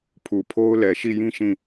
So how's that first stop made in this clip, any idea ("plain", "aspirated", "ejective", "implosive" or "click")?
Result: aspirated